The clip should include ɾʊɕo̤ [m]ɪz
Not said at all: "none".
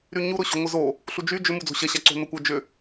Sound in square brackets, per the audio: ŋʷ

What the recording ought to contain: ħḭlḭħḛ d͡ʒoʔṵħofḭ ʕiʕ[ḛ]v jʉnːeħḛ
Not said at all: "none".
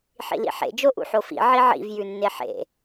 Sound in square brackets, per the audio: ḭ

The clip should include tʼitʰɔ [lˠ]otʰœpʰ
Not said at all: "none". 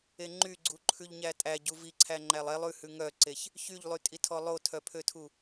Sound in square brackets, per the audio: lˠ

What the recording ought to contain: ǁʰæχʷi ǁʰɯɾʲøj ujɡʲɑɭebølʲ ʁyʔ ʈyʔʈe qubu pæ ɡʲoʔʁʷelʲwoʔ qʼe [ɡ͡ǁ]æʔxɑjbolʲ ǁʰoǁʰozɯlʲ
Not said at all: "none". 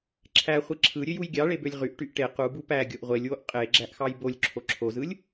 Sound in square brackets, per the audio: ɡ͡ǁ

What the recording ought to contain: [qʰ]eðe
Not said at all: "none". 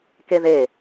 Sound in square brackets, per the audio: k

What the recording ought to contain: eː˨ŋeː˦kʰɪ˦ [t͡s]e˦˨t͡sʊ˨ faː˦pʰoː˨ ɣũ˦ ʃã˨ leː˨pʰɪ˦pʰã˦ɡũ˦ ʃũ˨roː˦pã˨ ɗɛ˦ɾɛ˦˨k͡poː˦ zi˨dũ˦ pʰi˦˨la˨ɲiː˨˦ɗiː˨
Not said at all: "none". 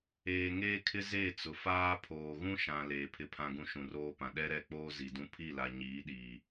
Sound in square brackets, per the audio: z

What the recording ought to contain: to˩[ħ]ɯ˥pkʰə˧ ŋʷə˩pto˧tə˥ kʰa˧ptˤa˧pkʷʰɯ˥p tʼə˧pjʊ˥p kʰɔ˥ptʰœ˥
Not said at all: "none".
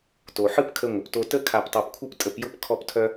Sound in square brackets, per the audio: ħ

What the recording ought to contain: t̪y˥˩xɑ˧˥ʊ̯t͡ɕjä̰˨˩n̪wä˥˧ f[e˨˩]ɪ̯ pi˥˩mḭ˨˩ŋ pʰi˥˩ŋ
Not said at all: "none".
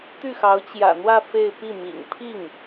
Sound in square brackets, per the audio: e˥˧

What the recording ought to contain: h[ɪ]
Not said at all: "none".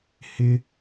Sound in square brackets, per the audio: ɪ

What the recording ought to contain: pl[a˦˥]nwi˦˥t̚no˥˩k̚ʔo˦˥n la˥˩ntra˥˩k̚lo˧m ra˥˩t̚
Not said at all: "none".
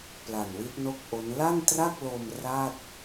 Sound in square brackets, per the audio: a˨˩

